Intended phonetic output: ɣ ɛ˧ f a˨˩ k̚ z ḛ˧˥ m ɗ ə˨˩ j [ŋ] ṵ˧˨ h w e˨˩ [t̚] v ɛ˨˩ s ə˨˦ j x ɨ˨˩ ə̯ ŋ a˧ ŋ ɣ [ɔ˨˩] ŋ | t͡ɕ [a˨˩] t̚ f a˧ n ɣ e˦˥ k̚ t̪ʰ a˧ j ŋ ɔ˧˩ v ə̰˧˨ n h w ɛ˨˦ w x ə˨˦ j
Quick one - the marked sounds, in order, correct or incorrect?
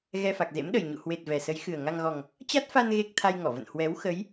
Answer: incorrect, correct, correct, incorrect

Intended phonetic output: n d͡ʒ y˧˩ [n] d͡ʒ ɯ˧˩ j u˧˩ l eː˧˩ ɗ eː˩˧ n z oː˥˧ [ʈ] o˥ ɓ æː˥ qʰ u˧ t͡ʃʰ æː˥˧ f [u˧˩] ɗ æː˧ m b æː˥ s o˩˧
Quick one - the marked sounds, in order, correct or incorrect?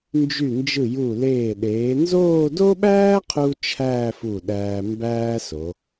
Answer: correct, incorrect, correct

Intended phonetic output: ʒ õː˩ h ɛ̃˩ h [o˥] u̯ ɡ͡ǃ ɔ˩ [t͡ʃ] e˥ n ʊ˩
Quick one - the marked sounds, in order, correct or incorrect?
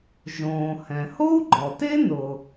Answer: correct, incorrect

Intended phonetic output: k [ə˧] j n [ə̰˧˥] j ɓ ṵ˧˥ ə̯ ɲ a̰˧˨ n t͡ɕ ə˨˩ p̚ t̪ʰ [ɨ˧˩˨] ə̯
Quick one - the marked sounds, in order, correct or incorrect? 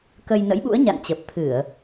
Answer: correct, correct, correct

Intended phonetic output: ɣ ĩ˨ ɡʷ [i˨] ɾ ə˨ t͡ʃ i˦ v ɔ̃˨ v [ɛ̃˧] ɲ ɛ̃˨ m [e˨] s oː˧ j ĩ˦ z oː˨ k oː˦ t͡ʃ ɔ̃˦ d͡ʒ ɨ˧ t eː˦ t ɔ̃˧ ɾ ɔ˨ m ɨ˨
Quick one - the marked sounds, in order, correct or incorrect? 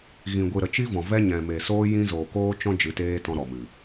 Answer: incorrect, incorrect, correct

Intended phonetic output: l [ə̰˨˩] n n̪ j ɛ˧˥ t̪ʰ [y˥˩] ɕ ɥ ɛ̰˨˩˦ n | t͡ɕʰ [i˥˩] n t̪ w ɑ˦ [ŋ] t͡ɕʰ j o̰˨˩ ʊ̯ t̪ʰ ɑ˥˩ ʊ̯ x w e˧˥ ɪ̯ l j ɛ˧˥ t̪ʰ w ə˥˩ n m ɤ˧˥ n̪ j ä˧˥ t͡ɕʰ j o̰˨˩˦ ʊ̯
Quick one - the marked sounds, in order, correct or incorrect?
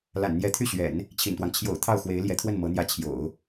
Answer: incorrect, correct, incorrect, correct

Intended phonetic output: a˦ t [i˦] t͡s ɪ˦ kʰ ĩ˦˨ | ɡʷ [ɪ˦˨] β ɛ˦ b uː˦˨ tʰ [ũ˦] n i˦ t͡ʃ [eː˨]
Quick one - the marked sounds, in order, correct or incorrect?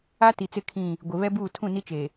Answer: incorrect, incorrect, incorrect, incorrect

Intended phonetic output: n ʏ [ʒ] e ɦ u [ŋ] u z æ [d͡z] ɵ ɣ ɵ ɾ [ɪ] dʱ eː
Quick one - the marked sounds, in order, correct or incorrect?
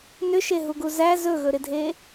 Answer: incorrect, incorrect, incorrect, correct

